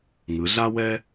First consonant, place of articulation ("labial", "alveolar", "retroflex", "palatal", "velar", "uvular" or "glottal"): velar